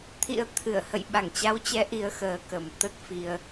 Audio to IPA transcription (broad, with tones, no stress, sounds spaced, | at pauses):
t̪ʰ ḭ˧˥ ə̯ t̪ʰ ɨ˧˩ ə̯ h ə̰˧˨ j ɓ a˧˩ ŋ t͡ɕ a˨˦ w t͡ɕ ɛ˨˦ ʔ i˨˦ ə̯ x əː˨˩ k ə˨˩ m t̪ ə˦˥ t̚ f i˧ ə̯